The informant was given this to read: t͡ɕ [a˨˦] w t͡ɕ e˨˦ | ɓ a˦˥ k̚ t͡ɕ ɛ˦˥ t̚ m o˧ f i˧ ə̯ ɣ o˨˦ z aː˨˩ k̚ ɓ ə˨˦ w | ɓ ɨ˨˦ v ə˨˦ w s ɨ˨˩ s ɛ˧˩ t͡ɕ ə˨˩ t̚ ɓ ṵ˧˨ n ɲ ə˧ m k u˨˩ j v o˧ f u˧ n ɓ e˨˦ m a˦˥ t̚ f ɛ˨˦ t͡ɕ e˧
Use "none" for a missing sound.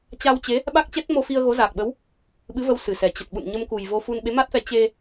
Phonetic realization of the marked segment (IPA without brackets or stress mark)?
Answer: a˧